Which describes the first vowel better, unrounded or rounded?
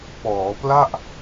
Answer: rounded